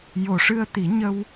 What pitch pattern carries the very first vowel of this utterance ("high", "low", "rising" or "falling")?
low